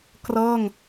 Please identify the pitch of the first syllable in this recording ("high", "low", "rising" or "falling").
falling